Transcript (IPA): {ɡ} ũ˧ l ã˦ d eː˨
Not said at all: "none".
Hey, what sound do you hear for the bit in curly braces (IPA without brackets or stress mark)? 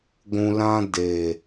ɡʷ